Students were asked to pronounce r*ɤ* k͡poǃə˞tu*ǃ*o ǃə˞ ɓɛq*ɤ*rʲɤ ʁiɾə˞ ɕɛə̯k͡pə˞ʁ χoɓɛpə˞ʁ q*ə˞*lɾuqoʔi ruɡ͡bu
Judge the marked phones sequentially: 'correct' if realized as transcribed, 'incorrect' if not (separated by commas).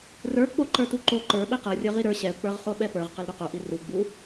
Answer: incorrect, correct, correct, incorrect